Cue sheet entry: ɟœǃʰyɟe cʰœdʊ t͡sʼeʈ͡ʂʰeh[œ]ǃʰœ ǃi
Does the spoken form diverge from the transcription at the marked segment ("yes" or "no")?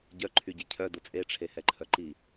yes